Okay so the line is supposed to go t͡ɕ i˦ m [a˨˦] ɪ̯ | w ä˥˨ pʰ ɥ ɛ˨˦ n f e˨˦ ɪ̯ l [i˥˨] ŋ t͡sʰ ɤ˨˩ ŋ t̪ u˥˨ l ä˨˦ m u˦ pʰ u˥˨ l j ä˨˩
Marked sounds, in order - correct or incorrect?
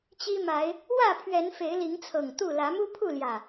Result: correct, incorrect

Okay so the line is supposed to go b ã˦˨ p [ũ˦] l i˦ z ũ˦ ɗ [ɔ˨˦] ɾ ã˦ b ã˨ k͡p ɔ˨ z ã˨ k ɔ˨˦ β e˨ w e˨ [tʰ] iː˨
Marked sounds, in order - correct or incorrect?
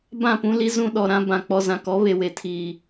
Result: correct, incorrect, correct

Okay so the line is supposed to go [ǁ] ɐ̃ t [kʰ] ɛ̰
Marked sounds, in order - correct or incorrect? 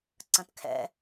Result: incorrect, correct

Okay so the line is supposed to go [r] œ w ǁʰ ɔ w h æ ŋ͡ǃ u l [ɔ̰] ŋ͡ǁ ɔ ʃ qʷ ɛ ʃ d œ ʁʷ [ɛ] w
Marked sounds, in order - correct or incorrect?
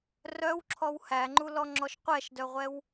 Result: correct, incorrect, correct

